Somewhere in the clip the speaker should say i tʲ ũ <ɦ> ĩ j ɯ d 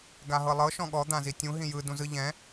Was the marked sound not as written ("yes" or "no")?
no